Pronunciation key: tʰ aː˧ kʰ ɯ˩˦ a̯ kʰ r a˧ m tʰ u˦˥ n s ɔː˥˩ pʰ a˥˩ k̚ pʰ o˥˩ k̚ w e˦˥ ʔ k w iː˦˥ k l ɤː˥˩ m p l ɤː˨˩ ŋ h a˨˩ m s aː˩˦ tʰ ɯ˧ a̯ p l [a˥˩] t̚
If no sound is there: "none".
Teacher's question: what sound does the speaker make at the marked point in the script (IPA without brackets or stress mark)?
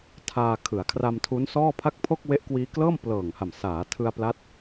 a˦˥